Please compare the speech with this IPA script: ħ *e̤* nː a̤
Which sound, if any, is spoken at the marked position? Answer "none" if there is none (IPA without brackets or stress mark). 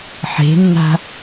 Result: e̤